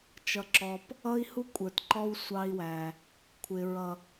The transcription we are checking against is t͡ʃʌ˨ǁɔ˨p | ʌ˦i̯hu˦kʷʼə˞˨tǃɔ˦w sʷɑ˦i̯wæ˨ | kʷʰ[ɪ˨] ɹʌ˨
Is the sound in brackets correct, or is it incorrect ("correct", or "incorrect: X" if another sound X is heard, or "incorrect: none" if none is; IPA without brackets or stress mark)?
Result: correct